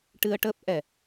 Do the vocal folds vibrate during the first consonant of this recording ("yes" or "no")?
no